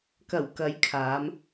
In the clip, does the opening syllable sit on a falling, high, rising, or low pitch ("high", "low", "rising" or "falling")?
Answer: low